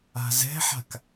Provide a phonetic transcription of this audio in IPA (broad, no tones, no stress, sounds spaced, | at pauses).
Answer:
a̤ z ɛ̤ ħ a̤ k